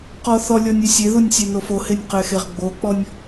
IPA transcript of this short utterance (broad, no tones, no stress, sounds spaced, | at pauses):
q ɔ θ ɔ lʲ ɔ nʲ ɛ sʲ e ð u nʲ sʲ e n o f o h e nʲ q ɛ x e ʁ ɡ͡b o k͡p ɔ nʲ